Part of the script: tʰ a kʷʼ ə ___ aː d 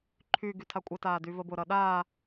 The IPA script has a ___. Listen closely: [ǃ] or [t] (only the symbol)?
t